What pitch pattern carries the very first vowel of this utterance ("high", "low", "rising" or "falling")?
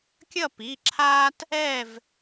falling